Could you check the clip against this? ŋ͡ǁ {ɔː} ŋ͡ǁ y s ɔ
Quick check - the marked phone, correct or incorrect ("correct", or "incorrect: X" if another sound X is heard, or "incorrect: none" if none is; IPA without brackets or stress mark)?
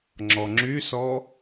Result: incorrect: ɔ